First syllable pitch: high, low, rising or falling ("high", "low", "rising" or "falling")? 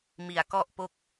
low